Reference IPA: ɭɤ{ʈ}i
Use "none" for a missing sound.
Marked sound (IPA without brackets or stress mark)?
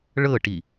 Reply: ʈ